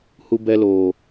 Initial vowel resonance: oral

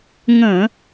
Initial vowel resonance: nasal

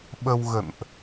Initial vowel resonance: oral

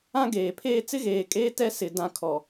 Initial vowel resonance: nasal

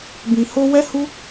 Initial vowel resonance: nasal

